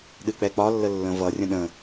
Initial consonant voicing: voiced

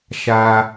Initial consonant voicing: voiceless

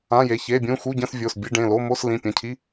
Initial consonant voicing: voiced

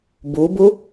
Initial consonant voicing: voiced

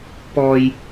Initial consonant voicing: voiceless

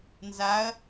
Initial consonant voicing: voiced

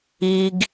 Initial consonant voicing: voiced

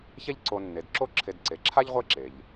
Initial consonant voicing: voiceless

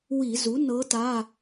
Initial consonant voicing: voiced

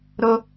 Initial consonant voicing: voiced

